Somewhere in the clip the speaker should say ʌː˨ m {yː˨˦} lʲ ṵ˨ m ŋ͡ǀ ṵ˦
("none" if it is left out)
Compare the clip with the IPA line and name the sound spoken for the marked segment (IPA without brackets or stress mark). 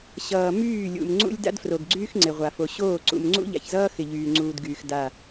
yː˦˨